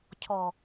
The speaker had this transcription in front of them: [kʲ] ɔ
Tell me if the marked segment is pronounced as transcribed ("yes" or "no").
no